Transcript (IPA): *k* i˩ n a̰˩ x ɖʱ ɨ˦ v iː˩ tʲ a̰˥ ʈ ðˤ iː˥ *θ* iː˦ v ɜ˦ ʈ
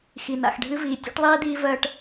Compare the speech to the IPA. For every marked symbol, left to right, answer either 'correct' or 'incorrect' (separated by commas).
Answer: incorrect, incorrect